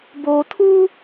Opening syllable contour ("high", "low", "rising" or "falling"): low